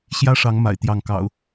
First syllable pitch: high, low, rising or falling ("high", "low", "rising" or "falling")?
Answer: high